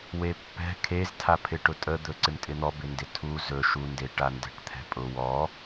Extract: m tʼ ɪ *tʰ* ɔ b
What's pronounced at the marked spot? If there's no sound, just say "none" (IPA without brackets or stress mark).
n̪